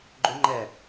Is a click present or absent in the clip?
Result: present